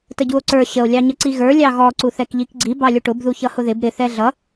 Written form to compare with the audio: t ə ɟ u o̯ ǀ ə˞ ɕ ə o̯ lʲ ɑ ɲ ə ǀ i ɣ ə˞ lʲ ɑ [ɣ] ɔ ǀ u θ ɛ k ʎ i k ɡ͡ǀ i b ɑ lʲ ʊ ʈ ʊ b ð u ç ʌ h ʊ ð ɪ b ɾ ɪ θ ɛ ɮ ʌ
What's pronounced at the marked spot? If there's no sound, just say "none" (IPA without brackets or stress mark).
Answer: ɣ